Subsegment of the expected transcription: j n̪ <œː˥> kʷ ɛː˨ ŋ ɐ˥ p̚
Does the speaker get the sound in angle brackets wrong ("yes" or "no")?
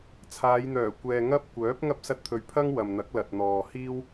yes